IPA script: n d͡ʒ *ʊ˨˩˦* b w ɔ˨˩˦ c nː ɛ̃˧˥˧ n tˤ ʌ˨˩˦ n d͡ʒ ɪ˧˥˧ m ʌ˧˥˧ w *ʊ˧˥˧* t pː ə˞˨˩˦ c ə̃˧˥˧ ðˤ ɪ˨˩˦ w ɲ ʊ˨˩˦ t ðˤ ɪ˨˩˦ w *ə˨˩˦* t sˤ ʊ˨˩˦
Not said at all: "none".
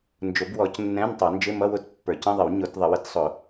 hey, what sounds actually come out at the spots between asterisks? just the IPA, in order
ʊ˨˩˦, ʊ˧˥˧, ə˨˩˦

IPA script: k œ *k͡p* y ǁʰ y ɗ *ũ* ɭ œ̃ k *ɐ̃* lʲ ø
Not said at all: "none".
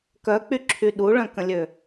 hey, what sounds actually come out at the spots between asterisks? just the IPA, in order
k͡p, u, ə̃

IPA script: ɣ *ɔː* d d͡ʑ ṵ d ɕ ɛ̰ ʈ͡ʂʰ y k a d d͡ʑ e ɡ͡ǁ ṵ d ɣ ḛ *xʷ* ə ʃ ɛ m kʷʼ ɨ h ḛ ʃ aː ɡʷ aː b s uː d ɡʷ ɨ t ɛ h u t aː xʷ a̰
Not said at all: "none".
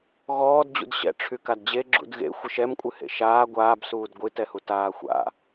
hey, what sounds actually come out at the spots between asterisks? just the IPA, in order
ɔː, xʷ

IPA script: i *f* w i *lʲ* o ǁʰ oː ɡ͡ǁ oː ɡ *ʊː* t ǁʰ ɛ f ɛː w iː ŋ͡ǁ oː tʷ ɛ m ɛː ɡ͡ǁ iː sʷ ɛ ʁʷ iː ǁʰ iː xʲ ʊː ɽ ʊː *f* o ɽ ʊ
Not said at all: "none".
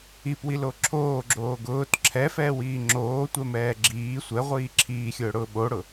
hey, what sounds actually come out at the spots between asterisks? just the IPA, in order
p, l, ʊː, ɓ

